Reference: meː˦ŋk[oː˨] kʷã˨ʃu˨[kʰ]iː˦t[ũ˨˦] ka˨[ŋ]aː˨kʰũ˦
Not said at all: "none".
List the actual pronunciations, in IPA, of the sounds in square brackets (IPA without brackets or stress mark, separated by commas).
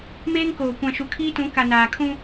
oː˨, kʰ, ũ˨˦, n